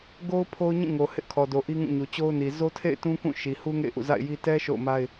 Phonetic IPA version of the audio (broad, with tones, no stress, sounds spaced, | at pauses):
ɡ o˦ ʊ̯ pʰ o˦ ʊ̯ ɲ ĩ˦˨ ŋ o˨ h ɪ˦ ʔ kʰ ɔ˨ d o˨ ʔ i˦ ŋ ũ˦˨ ɲ u˨ t͡ɕ o˦ ʊ̯ n i˨ z o˦ tʰ ḛ˦˨ ɪ̯ t ũ˦ k ũ˦˨ ʃ i˨ h u˦ ŋ ḛ˦˨ ɪ̯ ʔ ṵ˦˨ z a̰˦˨ ɪ̯ j i˦ t ɛ˦ ʃ o̰˦˨ ʊ̯ m a˦ ɪ̯